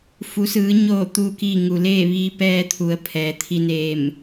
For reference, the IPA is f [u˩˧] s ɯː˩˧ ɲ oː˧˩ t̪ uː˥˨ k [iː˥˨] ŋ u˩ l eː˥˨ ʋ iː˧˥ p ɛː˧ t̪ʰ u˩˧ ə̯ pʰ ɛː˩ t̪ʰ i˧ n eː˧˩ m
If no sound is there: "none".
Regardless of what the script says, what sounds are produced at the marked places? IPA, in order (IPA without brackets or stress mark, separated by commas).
u˩˧, i˥˨